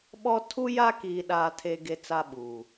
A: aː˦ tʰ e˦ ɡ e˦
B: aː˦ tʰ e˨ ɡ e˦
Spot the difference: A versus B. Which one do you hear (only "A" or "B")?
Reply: A